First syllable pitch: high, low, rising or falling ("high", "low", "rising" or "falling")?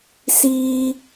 low